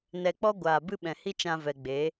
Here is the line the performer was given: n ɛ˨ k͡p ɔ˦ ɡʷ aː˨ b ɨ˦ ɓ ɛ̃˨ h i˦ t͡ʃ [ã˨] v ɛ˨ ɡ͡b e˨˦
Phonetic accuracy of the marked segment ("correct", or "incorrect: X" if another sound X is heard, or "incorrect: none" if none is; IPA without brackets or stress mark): incorrect: ã˧